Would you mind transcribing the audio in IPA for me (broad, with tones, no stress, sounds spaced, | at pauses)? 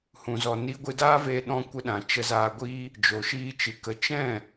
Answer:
h ũ˨ z ɔ˨ n i˧ ɡʷ ɨ˧ d aː˦ v eː˧ ɗ ɔ̃˧ kʷ ə˧ ɗ ã˨ t͡ʃ ə˧ z aː˧ ɡʷ iː˦ | d͡ʒ o˨ ʃ iː˧ t͡ʃ ɨ˨ k ə˨ t͡ʃ ɛ̃˦˨